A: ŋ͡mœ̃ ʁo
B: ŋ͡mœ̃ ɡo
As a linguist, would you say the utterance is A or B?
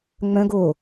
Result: B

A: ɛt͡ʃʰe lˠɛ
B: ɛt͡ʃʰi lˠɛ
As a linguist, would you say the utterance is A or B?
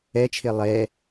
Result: A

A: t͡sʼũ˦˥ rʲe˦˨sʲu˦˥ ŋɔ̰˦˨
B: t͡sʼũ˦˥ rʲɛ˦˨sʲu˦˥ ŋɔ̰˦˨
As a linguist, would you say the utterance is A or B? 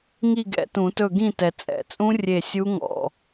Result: A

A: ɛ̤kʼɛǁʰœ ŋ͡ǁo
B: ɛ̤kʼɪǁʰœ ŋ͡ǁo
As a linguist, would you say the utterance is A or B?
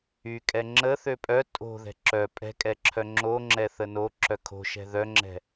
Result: A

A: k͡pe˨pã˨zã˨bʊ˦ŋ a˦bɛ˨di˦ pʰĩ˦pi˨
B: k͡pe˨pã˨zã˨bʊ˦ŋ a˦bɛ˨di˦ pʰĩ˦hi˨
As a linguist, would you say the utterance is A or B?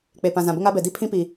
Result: A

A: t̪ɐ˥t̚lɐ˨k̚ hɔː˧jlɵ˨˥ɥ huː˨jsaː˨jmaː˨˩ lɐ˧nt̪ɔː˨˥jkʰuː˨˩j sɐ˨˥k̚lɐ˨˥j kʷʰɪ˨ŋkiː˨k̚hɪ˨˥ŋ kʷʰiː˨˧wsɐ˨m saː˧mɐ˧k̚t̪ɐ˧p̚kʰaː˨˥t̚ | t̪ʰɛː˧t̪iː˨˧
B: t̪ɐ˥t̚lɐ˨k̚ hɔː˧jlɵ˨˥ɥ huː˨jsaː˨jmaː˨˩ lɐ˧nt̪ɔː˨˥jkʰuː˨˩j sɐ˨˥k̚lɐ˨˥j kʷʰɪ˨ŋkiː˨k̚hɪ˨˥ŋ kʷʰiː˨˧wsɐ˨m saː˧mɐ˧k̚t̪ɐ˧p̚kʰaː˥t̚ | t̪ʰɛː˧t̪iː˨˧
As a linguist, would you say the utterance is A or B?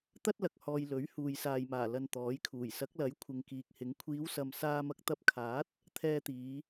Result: A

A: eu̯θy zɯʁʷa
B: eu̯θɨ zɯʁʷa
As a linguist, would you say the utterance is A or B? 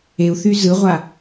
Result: A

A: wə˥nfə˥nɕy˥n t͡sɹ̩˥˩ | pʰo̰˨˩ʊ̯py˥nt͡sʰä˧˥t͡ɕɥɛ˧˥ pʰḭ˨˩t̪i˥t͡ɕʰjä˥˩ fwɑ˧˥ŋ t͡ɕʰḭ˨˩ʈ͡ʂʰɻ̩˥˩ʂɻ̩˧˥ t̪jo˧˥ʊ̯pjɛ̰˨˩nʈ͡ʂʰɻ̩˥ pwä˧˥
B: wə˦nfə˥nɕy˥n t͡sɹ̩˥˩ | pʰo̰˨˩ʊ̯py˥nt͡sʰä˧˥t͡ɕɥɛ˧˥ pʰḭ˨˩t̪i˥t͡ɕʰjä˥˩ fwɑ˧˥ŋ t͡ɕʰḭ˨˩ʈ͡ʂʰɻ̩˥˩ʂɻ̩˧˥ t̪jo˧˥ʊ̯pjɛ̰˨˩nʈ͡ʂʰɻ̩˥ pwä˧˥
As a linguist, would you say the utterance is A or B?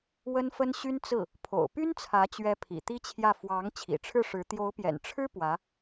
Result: A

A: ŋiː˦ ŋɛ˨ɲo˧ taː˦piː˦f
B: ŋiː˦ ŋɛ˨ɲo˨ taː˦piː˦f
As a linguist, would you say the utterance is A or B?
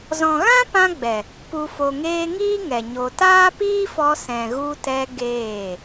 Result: A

